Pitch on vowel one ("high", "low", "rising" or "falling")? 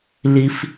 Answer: high